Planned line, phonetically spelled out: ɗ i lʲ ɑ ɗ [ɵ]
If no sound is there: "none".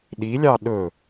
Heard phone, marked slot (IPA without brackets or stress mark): ɵ